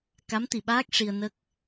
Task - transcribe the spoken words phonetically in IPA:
ka˧˥mt̪i˨˩ɓaː˦˥k̚ ʂi˧ə̯ nə˦˥k̚

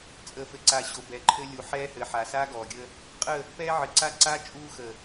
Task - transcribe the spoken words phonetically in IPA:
t͡sʼəː˨fɘ˨ǀa˨ ɕo˨bɛ˨ǃʰɘ˦ lʲu˨ ħɛː˦hɘ˨ ħa˨saː˦ɡɔː˨ɡʲə˦ | qʼə˦˨ | pɛː˦ʕɘ˨ǀa˦ ǀa˦ t͡ʃʼuː˦ xə˨

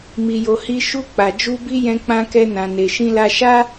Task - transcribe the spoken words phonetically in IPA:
mi˧jo˧hi˦ ʃu˦ k͡pa˧d͡ʒu˦ bi˦ jɛ̃˦k͡pã˦kɛ˦nã˧ ne˧ʃĩ˦la˦ ʃa˦

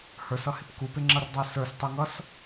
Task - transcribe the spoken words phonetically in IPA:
hə˞sʌhɪp kupɪŋ͡ǁʌrdˤə˞ sə˞stˤuŋʌs

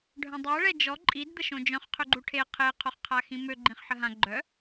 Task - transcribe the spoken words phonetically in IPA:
ɖʱœ̃dˤuɐ̯ ɭɛd͡ʒɔ ǃʼid d̪əʃõd͡ʒœ̃χ qʰøɡ͡ǃuʈʰe qʰe qʰoχqʰaxĩmø ɡ͡ǃĩχħəɦã ɡ͡ǃœ

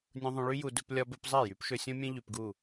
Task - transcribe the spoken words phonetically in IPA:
nʲũ˨ðˤũ˨ɭy˧ju˨ dɵ˧p lʲɒ˧bɵ˧p zˤɛ˦˨jy˨˦p ʃɵ˧sʲõ˦mʲɛ̃˦ ʎy˧pɡu˦˨

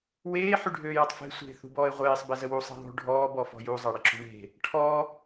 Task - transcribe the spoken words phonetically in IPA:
weː ħyɖʱøːjatˤfe̤ sʷe̤ θṳbɔːe̯ʁʷeːsˤ bɛzəwu sˤe̤ðˤṳ ɖʱɔː bɔfɔ̤ju zˤaɽəǁṳɳe̤ | ʈʰɔ

